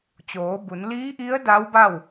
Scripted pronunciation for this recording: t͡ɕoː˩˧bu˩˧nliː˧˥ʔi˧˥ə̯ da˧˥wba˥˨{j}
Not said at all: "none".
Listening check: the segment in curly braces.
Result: w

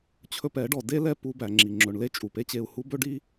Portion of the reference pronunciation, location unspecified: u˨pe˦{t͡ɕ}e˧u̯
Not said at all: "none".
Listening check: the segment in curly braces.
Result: t͡ɕ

